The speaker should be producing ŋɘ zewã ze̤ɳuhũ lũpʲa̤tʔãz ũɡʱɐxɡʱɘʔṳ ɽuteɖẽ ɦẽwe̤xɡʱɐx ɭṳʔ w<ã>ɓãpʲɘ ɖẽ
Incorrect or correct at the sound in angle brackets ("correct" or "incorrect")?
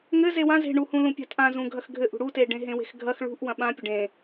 incorrect